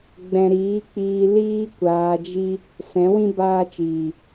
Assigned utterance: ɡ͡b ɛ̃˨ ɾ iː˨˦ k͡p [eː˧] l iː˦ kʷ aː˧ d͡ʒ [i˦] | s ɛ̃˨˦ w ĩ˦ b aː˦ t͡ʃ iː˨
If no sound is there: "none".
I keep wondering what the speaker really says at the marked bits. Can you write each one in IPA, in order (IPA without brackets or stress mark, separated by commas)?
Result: iː˧, i˦